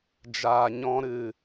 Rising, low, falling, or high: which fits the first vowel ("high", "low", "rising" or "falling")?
low